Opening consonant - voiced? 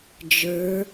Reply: yes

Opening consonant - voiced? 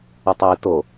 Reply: no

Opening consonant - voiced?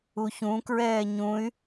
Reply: no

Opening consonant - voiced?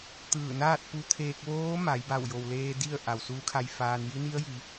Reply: no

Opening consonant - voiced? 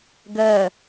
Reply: yes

